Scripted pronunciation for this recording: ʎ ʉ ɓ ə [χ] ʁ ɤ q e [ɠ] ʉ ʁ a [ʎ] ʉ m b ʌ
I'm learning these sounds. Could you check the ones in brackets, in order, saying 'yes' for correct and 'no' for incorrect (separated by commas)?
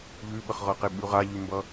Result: yes, no, yes